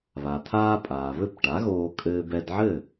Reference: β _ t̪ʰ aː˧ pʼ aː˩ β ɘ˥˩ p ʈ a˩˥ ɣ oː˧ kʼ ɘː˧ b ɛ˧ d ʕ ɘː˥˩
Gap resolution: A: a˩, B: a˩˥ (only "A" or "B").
A